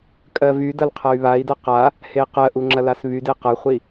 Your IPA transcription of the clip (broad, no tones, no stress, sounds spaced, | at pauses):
kʼ ɜ v y d ɐ l qʰ ɐ y̯ β a i̯ d ɐ q a | h e q ɜ ʔ u ŋ͡ǁ ɐ l a s β y d e q ɐ χʷ i